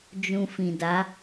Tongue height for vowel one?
high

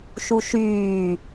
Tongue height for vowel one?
high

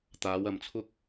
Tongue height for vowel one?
low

